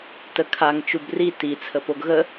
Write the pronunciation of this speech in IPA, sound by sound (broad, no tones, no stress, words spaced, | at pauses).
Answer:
təkʰaŋ t͡ʃubri ti t͡sʰəpoɡɣə